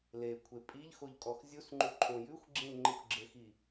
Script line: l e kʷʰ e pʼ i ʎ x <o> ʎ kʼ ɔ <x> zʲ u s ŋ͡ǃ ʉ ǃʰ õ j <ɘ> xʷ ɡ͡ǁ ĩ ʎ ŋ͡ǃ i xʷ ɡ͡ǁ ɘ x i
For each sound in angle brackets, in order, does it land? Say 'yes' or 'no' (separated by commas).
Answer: yes, yes, no